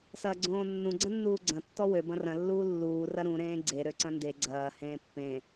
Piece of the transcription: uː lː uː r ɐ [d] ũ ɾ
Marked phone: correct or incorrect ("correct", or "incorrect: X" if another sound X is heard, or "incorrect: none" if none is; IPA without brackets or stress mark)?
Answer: incorrect: ɾ